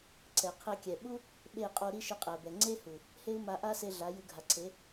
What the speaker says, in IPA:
ǀ ɛ˨ qʰ e˧ kʲ ɛ˨ ɓ u˦ | ɓ e˦˨ qʼ o˧ ɾ i˦ ʃ ɯ˧ qʼ ɛ˨ b ɛ˨ ŋ͡ǀ e˦ h u˨ | h e˦ u̯ m a˧ ʔ a˦ s e˧ ɮ a˨˦ j ɯ˧ ɡʱ a˨ ǀʰ e˨˦

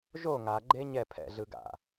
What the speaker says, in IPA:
ʒ o ŋ a ɡ͡ǃ e ɲ ɛ pʰ ɛ̰ ɮ ɯ ɡ a̰

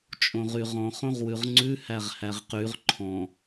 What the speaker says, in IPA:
t͡ʃʼ õ ʁ y ʁ ɔ̃ χ õ ʁ w ʉ ʁ ŋ͡ǀ ʉ h æ ʁ h æ ʁ q y ʁ ǃʰ ɔ̃

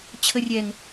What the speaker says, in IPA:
t͡ɕʰ ə rʲ ɛ ŋ

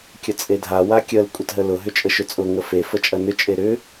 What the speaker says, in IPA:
kʲ ə t͡sʼ e dʱ a w a kʲ ə l kʷʼ ə t ɦ ə l ʊ ɦ ʏ t͡ʃʼ ə ʃ ʏ t͡sʼ ʊ ŋ ə f e f ə t͡ʃʼ ɐ n ʏ t͡ʃʼ e ɾ ʏ

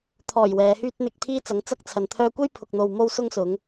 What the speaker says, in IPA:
t̪ʰ ɔː˨˩ j w ɛː˨˧ h yː˥ t̚ n̪ ɪ˧ k̚ t̪ʰ iː˥ t͡s ɐ˨˥ ŋ t͡s ɐ˥ k̚ t͡sʰ ɐ˨ n t̪ʰ œː˧ kʷ e˥ j pʰ ʊ˨ k̚ n̪ o˨ w m o˧ w s ʊ˧ ŋ s ʊ˨˧ ŋ

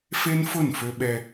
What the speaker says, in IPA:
f e˦ n f ʊ˦˨ n f ø˦ ɓ ɛ˦

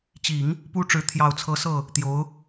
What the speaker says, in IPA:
t͡ɕ i˨˩˦ ŋ | p u˥ ʈ͡ʂ ɻ̩˧˥ t̪ʰ j ɑ˨˩ ʊ̯ t͡sʰ ɤ˧˥ s ɤ˥˩ | t̪ j o˧˥ ʊ̯

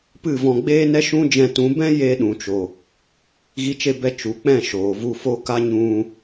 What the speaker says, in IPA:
p ɨ˦˨ v ɔ̃˧ ɡ͡b eː˦ n ɛ˦ ʃ ũ˦ d͡ʒ ɛ̃˧ t ũ˨˦ b ɛ̃˦ j e˧ ɗ ũ˨ t͡ʃ o˨ | ɣ i˧ t͡ʃ e˧ b ɛ˧ t͡ʃ u˨ k͡p ɛ̃˦˨ ʃ oː˨ v u˧ f o˧ k a˧ ɲ ũ˧

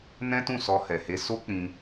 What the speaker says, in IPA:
n ɛ̃˦ t ũ˦˨ s ɔ˧ h ɛ˨ h e˧ s o˦ k͡p ĩ˧

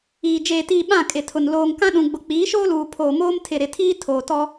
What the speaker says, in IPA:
iː˨ d͡ʒ eː˨ t iː˨ ɓ ã˦˨ kʼ ɪ˨ tʰ ʊ˨ n l oː˨ ŋ k ã˦ ɗ ũ˨ ɡ͡b ʊ˨ k͡p iː˨˦ ʃ oː˦ l uː˨ pʰ oː˨ m oː˦ m tʰ ɪ˨ ɾ ɪ˨ tʰ iː˦ tʰ oː˨ t ɔ˦

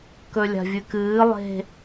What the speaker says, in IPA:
k ɵ lʲ a̤ vʲ ɨ k ɨː lˠ e̤

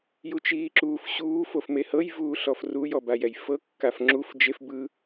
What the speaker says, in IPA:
j u t͡ʃ iː ǁ uː f ɕ uː f o f m e h ɤ j v uː ɬ ɔ f r u j ɔ b a j ɛ j f ɤ kː a f ŋ͡ǁ u f d͡ʒ e f b ɯ

